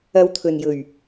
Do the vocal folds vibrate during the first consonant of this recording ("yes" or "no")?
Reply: yes